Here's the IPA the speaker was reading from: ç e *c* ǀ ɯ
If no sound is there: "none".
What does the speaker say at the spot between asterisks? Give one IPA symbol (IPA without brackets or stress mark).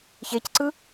c